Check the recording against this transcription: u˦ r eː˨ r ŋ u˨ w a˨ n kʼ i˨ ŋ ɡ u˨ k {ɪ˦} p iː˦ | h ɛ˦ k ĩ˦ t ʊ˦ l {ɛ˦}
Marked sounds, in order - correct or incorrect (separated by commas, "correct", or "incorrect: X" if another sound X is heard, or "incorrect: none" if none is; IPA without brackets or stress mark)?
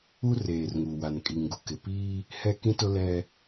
incorrect: ɪ˨, correct